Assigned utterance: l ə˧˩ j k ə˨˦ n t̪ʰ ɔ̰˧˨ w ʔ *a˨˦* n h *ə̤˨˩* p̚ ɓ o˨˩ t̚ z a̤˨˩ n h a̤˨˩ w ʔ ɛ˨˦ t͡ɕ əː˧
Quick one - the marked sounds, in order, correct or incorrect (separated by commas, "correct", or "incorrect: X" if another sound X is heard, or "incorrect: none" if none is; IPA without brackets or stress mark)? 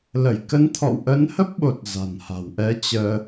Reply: incorrect: ə˨˦, incorrect: ə˦˥